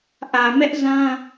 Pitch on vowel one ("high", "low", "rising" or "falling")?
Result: low